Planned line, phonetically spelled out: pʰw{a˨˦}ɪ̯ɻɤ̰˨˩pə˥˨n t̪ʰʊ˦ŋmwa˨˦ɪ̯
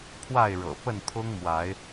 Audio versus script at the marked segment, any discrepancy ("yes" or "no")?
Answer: yes